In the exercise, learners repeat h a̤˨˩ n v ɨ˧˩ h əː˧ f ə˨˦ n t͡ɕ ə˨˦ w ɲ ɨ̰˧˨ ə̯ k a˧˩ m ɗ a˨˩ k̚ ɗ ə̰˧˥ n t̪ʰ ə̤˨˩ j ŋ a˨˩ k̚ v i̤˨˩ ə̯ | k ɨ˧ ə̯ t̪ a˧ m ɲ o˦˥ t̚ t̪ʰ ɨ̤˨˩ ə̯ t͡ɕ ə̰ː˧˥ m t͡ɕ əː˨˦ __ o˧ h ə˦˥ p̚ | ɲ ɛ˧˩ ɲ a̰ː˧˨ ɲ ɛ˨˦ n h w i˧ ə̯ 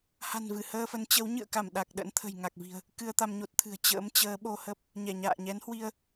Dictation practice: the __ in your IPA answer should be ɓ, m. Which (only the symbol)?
ɓ